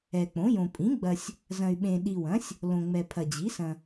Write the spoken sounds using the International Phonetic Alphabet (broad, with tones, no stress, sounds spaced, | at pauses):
ɛ˨ k͡p õ˩˥ j õ˨ pʼ ĩ˩˥ ɡ͡b ɐ˨ sʲ | z ɐ̃˨ y̯ ɓ ẽ˨ ɗ i˨ w ɐ̃˩˥ sʲ | l õ˨ ŋ͡m ɛ˨ pʰ ɐ˨ d͡ʑ i˩˥ s ɐ̃˨